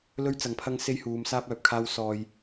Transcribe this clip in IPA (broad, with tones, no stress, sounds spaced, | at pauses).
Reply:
l ɵ˥ ɥ t͡s ɐ˨˥ ŋ pʰ ɐ˥ ŋ s e˥ j h uː˨˧ m s aː˥ p̚ œː˨ p̚ kʰ aː˥ w s ɔː˧ j